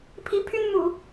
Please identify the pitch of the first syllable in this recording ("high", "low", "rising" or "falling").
rising